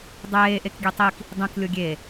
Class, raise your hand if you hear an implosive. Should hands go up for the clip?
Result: no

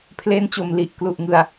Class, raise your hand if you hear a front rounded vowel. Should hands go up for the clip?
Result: no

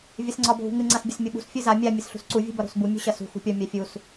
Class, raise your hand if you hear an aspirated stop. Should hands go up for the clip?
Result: no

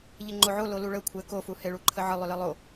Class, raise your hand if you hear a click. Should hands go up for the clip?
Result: yes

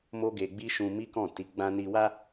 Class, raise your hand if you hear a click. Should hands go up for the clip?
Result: no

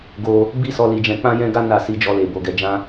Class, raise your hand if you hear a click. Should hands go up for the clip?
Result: no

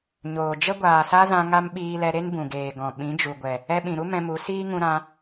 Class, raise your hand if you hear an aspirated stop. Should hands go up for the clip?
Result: no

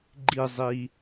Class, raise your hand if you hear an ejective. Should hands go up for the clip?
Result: no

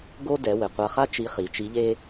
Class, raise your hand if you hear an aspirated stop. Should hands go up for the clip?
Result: no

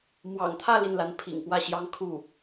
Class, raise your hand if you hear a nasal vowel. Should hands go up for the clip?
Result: no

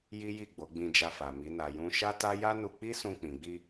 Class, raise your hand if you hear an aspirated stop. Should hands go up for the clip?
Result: no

